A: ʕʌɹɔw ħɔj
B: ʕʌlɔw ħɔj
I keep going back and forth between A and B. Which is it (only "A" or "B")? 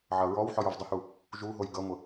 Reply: A